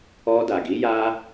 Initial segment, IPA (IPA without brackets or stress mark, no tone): ɔ